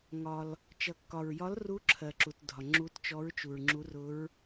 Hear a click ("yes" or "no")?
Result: yes